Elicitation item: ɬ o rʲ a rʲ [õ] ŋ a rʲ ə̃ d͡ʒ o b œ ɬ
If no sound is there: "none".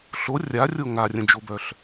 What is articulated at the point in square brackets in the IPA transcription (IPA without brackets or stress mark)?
o